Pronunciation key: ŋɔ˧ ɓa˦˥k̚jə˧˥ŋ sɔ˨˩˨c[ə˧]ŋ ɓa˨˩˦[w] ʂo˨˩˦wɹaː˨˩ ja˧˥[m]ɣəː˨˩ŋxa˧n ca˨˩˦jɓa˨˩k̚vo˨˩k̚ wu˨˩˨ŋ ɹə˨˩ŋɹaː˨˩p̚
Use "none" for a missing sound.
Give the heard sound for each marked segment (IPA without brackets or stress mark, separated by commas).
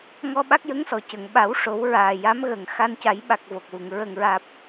ə˨˩˨, w, m